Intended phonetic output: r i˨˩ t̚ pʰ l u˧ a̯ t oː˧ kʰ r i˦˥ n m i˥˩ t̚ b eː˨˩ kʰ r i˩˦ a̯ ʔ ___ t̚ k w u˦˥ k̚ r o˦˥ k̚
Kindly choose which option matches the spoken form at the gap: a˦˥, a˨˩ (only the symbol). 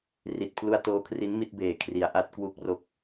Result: a˦˥